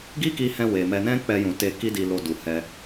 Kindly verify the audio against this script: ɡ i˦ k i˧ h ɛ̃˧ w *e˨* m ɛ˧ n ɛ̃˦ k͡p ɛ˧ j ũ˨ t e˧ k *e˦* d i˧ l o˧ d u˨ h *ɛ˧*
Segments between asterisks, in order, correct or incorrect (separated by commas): correct, incorrect, correct